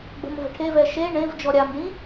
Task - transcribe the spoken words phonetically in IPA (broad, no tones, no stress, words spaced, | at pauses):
ɡ͡bə̤mvə̤ʈʰevɛ ʃe ɳẽv d͡ʒɔɾʲamɖĩ